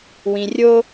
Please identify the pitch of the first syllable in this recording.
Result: low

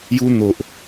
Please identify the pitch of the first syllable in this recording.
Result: high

